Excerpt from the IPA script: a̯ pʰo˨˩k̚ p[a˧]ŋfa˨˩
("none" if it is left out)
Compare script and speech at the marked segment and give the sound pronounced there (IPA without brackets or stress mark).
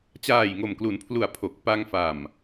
a˧